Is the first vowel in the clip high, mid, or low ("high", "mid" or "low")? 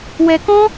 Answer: mid